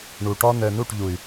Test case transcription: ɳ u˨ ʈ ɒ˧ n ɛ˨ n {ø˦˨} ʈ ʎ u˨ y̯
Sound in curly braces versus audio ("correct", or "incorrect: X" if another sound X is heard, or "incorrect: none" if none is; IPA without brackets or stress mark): incorrect: u˦˨